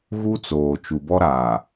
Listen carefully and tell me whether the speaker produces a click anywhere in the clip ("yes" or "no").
no